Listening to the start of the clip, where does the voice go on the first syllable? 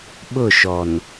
falling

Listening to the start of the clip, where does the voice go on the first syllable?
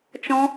high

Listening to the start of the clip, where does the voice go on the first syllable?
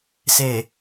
low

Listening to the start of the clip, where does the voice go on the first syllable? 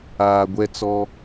low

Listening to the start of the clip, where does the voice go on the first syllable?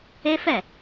high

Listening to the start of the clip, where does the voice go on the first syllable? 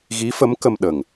rising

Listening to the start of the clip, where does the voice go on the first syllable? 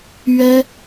high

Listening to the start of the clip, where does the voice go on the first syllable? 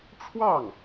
falling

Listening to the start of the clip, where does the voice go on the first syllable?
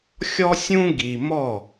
high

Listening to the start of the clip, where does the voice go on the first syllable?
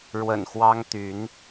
low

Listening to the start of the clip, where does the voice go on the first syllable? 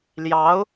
rising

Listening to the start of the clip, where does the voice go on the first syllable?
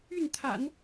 falling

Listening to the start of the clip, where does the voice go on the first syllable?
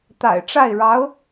low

